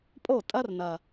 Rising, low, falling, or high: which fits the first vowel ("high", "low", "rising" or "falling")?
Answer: falling